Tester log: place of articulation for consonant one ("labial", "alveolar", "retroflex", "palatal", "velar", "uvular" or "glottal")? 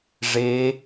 retroflex